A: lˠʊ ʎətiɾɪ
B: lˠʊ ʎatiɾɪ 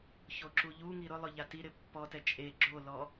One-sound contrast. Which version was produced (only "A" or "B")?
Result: B